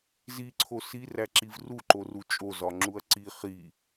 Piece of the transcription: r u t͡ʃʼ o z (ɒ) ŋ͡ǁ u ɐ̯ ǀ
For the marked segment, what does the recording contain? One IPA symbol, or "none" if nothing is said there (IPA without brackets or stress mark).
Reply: ɒ